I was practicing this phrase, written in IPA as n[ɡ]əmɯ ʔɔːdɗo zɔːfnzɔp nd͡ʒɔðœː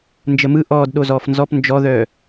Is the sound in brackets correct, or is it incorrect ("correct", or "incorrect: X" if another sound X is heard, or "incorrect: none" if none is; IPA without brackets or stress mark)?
incorrect: d͡ʒ